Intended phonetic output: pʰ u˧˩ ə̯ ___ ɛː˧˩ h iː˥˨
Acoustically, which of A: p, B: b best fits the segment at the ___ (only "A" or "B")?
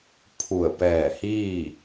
A